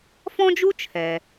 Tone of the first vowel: high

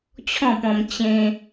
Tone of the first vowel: falling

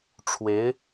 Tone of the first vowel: rising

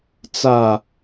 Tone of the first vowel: falling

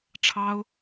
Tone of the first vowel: high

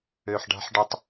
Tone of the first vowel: low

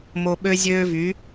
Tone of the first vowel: low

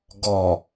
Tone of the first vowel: low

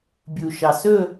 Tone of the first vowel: low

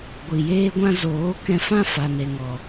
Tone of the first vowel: low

